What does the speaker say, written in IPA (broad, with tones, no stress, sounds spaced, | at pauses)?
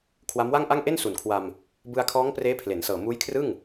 kʰ w a˦˥ m w a˥˩ ŋ ʔ a˥˩ ŋ ʔ e˥˩ n s u˩˦ n kʰ w a˧ m | b ɯ˧ a̯ kʰ ɔː˦˥ ŋ p r eː˦˥ pʰ l e˩˦ n s ɤː˨˩ m uː˦˥ j kʰ r ɯ˥˩ ŋ